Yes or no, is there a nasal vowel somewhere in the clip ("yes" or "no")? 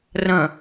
yes